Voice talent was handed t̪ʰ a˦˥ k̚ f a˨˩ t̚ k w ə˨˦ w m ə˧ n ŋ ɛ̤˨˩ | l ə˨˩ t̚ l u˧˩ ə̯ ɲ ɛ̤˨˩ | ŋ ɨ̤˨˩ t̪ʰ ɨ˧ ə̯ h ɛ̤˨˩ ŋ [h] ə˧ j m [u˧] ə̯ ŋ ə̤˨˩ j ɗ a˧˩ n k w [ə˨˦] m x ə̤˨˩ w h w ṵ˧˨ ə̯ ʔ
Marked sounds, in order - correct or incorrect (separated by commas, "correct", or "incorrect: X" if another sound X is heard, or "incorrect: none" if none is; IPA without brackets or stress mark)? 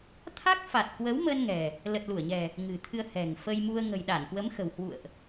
incorrect: f, correct, correct